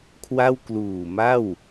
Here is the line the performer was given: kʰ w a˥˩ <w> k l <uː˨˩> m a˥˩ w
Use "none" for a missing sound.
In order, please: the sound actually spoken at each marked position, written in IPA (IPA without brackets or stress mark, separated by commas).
w, uː˨˩